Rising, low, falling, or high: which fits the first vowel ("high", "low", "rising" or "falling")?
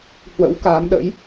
rising